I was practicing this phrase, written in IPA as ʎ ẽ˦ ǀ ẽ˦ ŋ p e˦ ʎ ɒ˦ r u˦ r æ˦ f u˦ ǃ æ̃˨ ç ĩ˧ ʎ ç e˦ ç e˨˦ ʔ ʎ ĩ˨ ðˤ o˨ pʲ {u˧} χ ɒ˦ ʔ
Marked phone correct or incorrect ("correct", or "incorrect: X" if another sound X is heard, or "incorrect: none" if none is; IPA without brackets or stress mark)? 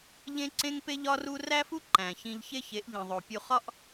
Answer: correct